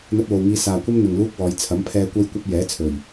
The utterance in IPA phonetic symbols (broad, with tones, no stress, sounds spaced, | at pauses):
n̪ ɐ˧ t̚ w o˨ w ŋ iː˧ s aː˨ kʷ ɐ˥ m n̪ ɪ˨ ŋ l uː˥ k̚ w ɔː˨˧ j t͡sʰ ɐ˨˥ m pʰ ɛː˧ kʷ ɐ˥ j kʷ ɐ˥ p̚ j ɛː˨˥ t͡sʰ ɵ˨˩ ɥ